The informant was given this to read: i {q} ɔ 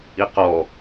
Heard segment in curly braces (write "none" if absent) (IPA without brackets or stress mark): q